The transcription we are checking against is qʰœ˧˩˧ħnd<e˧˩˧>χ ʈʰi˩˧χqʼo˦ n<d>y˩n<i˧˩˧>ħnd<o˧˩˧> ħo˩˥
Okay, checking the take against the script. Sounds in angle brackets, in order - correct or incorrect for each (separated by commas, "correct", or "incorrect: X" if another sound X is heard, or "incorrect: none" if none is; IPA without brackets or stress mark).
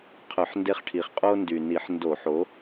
incorrect: e˦, correct, correct, correct